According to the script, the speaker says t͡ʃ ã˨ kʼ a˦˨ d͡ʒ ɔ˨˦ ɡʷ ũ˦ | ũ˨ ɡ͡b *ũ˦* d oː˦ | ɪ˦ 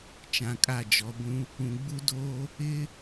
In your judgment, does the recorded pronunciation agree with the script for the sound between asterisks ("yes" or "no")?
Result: no